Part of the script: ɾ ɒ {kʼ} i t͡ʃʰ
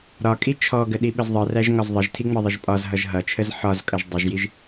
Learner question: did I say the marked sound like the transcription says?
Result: yes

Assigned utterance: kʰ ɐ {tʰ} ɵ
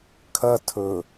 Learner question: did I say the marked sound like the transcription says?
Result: yes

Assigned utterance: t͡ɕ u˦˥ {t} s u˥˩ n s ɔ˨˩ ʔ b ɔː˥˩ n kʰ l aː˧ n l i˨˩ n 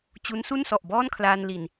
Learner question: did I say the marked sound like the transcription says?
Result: no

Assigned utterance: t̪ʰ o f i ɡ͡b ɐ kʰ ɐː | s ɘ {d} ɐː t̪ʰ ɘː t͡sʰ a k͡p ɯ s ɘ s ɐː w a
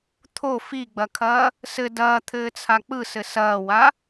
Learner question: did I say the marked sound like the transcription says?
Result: yes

